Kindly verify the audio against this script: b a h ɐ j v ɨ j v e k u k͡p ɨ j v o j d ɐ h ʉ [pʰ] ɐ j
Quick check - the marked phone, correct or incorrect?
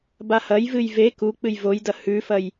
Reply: incorrect